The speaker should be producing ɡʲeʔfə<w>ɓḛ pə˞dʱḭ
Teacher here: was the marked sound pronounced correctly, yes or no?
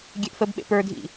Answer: no